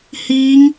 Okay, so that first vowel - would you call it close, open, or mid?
close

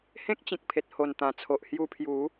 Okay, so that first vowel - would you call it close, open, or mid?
mid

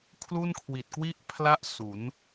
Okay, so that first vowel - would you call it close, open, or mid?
close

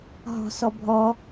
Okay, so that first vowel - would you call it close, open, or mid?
mid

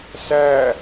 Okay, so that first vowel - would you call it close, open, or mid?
open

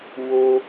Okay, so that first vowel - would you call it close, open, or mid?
mid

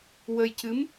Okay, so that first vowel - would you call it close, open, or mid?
mid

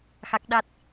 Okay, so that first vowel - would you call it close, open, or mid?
open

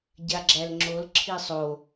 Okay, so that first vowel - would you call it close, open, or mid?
open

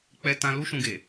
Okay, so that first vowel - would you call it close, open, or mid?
mid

